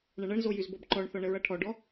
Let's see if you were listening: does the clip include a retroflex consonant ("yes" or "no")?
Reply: yes